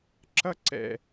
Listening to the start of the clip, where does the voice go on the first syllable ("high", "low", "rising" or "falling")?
high